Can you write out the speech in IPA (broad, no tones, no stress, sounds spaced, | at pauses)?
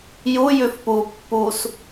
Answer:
j u j ʉ f p u pː u s